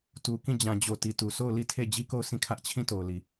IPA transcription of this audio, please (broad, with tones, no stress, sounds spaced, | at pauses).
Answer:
t u˨ k ĩ˦˨ d͡ʑ ã˨ d͡ʑ o˨ t i˨ t u˨ sʰ o˦˨ ʊ̯ l i˦˨ tʰ e˦˨ d͡ʑ i˦ k o˦˨ ʊ̯ sʰ ĩ˦˨ kʰ ä˦ ʔ t͡ɕʰ ĩ˦˨ t o˨ ʊ̯ l i˨